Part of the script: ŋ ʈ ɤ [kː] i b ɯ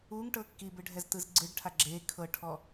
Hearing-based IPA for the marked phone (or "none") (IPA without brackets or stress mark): kː